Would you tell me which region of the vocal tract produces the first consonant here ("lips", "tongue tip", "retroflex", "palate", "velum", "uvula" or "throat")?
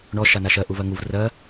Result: retroflex